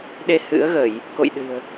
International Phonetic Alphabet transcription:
ɗ e˧ h ɨ̰˧˥ ə̯ ɣ ə˧˩˨ j | k o̰˧˨ j ɗ ɨ̤˨˩ ə̯

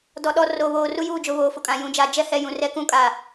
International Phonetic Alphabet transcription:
d ɔ˨ ɗ ɔ˨ r oː˨ β oː˨ r u˦ j uː˦˨ d͡ʒ ʊ˨ β oː˨ f ʊ˨ kʼ ã˨ j ũ˨˦ d͡ʒ a˨ d͡ʒ ɛ˦ h ɛ˨ j ũ˨ r ɛ˦ k ũ˦ kʼ a˨

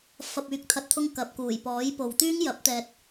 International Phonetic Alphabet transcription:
f ɐ˨ p̚ yː˨˥ k̚ t̪ʰ ɐ˨ t̚ t̪ʰ ʊ˧ ŋ k ɐ˨ p̚ k uː˨˩ j p ɔː˨˥ j p o˨ w t̪ yː˥ ŋ j ɐ˨˥ p̚ t̪ ɛː˨ t̚

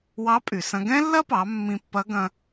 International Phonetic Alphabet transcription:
w ɑ˧˥ pʼ y˩ s ɐ̃˧ ɡ ɛ̃˥ lː ɐ˥ p ɑ˩˧ mː ĩ˧ pː ɐ˧˥ ɡ ɐ̃˧

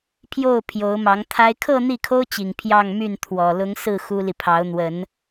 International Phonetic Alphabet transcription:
pʰ j o˥˩ ʊ̯ pʰ j o˧˥ ʊ̯ m ɑ˧˥ ŋ t̪ʰ a˥ ɪ̯ kʰ ɤ˥˧ n̪ i˥˩ kʰ o˥ ʊ̯ t͡ɕ i˨˩ ŋ pʰ j ɑ˥˧ ŋ m y˥˩ n t̪ʰ w ɔ˨˩ l ʊ˧˥ ŋ s ɹ̩˥˩ x u˥ l i˨ pʰ ɑ˧˥ ʊ̯ n̪ w ə˨˩˦ n

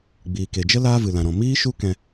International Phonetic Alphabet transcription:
ɡ͡b iː˨ k e˨ d͡ʒ ə˦ l aː˦ v ɨ˨ l ã˨ ɾ ɔ̃˨ m iː˦ ʃ u˦ k ɛ̃˧

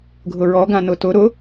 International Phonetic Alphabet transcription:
ɡʱ ʊ ɹ ɔ ɡ ã n ʊ t ʊ ɾ ʊ

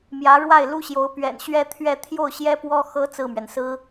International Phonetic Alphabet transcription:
m j ä˧˥ ɻ w a˥˩ ɪ̯ l u˥ ɕ j o˧˥ ʊ̯ p ɥ ɛ̰˨˩ n ɕ ɥ ɛ˥ t̪ʰ ɥ ɛ˥˧ t̪ʰ j o˥˩ ʊ̯ ɕ j ɛ˥ p w ɔ˥ x ɤ˧˥ t͡s ɹ̩˥˩ m ɥ ɛ˩ n s ɹ̩˥

